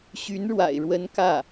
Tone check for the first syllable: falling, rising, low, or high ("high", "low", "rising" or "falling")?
rising